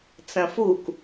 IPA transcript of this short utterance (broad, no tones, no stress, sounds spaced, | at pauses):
t͡s ɐ̃ f u k